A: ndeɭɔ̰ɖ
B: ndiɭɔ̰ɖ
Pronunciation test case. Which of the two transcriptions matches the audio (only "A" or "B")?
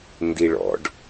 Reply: B